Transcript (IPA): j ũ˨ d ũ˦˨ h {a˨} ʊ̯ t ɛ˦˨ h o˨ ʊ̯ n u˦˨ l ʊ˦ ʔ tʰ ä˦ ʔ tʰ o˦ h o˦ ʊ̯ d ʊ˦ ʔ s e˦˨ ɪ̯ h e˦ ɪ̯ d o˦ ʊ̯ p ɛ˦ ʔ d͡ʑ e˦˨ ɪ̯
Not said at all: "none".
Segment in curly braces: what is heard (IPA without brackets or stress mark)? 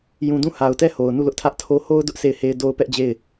a˨